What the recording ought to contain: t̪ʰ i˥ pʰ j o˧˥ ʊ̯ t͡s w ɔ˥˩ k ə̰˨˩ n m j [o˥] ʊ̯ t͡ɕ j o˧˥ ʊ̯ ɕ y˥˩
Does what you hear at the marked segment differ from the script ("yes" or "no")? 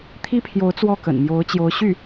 yes